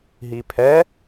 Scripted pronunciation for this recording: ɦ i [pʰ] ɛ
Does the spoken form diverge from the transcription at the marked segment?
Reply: no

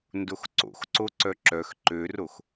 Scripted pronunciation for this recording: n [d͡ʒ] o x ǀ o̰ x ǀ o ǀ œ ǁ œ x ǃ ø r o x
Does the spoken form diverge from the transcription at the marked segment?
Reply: yes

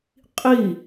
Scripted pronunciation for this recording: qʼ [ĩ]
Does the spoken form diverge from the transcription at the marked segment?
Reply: yes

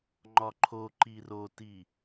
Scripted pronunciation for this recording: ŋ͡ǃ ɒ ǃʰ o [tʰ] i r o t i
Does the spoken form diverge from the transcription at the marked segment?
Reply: yes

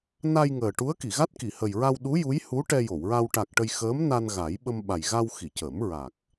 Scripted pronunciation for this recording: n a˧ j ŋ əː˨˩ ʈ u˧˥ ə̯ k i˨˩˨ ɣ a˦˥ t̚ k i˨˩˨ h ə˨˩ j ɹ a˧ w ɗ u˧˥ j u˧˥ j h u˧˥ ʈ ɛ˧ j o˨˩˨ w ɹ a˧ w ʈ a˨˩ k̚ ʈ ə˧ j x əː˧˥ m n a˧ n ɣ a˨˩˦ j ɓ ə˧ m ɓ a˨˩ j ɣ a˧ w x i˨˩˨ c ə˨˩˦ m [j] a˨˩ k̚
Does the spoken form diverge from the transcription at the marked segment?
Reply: yes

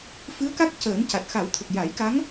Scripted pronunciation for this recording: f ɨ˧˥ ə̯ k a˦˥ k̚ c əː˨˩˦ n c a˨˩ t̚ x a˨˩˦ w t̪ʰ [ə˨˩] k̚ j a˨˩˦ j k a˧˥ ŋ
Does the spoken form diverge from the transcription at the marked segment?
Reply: no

